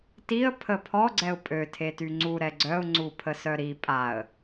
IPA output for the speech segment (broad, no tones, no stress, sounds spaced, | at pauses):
t i ə̯ pʰ ə pʰ ɔ ɡ͡ǀ ɛ ʊ̯ pʼ ø tʰ e t y ŋ͡ǀ u ɾ ɛ ɡ͡ǀ œ ʊ̯ ŋ͡ǀ u pʰ ə s œ ɾ i pʼ a ə̯